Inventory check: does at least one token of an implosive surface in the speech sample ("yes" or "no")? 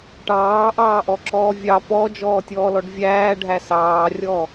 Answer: no